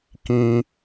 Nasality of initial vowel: nasal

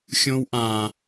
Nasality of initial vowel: nasal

